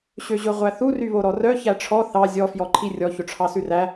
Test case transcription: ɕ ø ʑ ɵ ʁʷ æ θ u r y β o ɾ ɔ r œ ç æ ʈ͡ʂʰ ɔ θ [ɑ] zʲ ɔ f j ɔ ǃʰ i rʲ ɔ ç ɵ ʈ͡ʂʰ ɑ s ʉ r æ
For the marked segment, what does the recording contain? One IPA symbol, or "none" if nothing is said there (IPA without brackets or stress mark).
ɑ